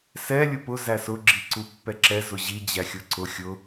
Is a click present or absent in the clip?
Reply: present